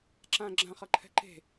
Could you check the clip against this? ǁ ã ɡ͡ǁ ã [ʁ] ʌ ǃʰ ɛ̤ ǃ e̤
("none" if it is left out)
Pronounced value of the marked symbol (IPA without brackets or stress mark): χ